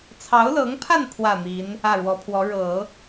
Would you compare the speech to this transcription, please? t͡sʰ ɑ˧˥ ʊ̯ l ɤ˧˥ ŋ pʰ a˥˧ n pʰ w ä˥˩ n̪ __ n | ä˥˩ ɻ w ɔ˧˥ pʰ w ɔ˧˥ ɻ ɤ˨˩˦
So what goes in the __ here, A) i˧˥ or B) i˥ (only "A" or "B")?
A